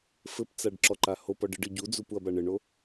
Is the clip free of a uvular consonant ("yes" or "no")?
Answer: yes